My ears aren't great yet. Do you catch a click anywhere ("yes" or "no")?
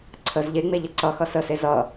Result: yes